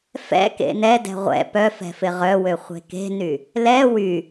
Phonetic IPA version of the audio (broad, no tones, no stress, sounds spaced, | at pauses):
f ɛ̰ k ḛ n ɛ d ɛ̤ ʁʷ ɛ̰ p œ f ɛ̤ f ɪ ʁ œ w ø χʷ e̤ k e̤ n y | l ɛ w y